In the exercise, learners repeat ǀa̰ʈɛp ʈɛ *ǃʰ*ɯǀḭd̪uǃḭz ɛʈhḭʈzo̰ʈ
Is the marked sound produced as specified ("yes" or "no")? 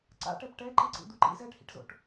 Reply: no